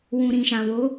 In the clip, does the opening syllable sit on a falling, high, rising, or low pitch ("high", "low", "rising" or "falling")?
low